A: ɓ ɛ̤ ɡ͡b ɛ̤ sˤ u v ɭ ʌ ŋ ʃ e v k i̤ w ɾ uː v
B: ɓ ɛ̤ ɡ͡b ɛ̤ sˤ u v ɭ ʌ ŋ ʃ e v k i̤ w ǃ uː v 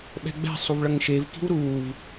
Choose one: A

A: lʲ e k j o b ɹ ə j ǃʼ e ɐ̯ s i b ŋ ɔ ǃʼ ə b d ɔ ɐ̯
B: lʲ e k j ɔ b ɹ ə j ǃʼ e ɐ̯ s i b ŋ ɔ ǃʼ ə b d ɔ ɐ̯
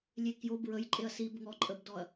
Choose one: A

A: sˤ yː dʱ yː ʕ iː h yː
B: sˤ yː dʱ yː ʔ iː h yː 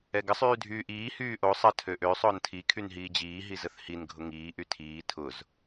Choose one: B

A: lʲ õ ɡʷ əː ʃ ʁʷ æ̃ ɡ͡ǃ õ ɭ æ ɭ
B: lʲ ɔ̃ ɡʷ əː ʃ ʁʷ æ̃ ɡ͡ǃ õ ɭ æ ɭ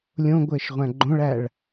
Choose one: A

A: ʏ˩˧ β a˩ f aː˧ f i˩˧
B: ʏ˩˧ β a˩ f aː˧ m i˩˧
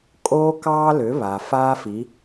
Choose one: A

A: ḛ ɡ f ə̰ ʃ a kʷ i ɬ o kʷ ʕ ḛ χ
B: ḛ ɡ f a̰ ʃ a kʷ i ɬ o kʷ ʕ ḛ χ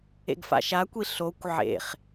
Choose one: B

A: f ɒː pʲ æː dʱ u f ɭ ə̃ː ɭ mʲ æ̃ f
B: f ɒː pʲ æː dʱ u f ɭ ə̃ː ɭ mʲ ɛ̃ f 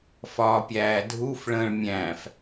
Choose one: A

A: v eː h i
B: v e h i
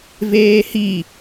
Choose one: A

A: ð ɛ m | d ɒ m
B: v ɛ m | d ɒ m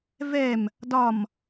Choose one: B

